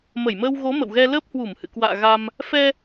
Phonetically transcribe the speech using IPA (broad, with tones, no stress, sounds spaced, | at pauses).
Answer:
m ə˧˩ j m əː˧ w ɣ o˨˦ m ə̰˧˨ w ɣ ɛ˧ l əː˦˥ p̚ h w u˧˩ m h ɨ̰˧˨ k w a̰ː˧˨ ɣ a˧ m | f ɛ˧